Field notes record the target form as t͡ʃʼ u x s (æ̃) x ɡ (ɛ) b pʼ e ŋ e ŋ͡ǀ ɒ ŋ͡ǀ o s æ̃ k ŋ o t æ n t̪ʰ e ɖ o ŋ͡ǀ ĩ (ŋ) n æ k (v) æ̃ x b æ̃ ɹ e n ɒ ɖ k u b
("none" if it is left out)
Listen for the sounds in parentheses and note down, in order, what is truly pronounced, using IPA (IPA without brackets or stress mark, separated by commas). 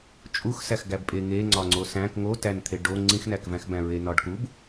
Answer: æ, æ, x, v